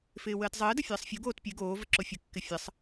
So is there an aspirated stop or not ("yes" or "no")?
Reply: no